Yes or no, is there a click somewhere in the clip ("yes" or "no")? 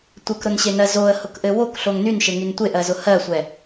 no